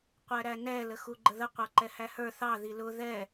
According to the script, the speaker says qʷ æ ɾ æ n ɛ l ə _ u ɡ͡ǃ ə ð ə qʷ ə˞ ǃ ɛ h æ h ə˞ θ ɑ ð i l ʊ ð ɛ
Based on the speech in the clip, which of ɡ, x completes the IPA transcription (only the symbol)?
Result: x